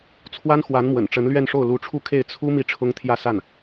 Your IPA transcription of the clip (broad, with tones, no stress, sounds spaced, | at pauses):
t͡sʰ w a˥ n x w a˧˥ n m w ə̰˨˩ n ʈ͡ʂ ə˧˥ n l ɥ ɛ˥˧ n ʂ o˥˩ ʊ̯ l u˧˥ ʈ͡ʂʰ u˥˧ kʰ e˥˩ ɪ̯ t͡sʰ u˥ m i˥˩ ʈ͡ʂʰ ʊ˥ ŋ t̪ʰ j ä˥˧ s a˥˩ n